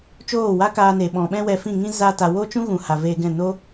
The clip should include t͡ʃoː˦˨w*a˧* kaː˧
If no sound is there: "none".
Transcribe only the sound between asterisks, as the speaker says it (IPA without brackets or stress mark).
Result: a˦